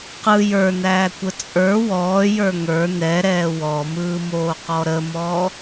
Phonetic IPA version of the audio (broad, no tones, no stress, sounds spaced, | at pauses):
q ɯ j ə˞ n æː kʷ ə t͡sʼ ə˞ w ɔː j ə˞ ŋ ə˞ n ɛ ɾ ɛː w ɔ m ɯː m oː q ɔ ɾ ə m ɔː